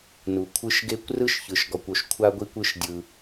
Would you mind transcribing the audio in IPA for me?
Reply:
n u˩ kʷʰ ɯ˧ ʃ ɡ e˧ kʷ r ɯ˥ ʃ ç ɯ˩ ʃ ɡ ɔ˩ kʷ o˩ ʃ kʷʰ a˧ ɡʷ i˧ kʷ ɯ˧ ʃ dʲ ɯ˩

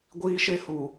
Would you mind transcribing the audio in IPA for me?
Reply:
ɡʷ iː˦ ʃ e˦ h u˨

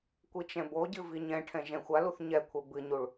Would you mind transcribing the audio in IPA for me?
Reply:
kʷ i t͡ʃ ɛ̃ b o ɟ ɨ v i ɲ ɛ̃ ʈʰ ɛ̃ ʒ ɛ̃ xʷ a l u θ ɲ ɛ kʷʰ ɛ b ɨ ɲ u ɭ

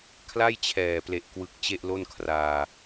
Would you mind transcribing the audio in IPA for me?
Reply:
kʰ l a˥˩ j t͡ɕʰ ɛː˨˩ p l e˨˩ ʔ k w ɯ˨˩ k̚ t͡ɕ e˥˩ ʔ l o˥˩ n kʰ r aː˧

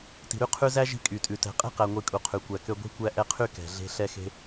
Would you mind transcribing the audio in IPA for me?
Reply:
t i̤˩ ɾ y˦ qʰ ʉ˦ z æ˥ ʒ i̤˦ kʼ y˩ tʼ ʉ˩ t ɛ̤˨ qʼ e̤˥ q æ˨ ŋʷ i˨ kʼ u˩ qʰ ʉ˩ kʷ æ˨ k ø˦ ɡʷ i̤˦ kʷ æ˦ ʔ ɛ˦ qʰ y˥ k ɛ̤˩ ɮ e̤˥ ɬ ɛ˥ x e̤˥

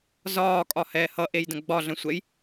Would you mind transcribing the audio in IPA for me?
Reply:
z ɒː kʼ ɒ h ɛː h ʌ ʔ e j d ə̃ ɡ͡b ɒ ɮ ə̃ sʷ ɛ j

